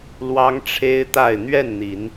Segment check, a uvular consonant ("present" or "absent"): absent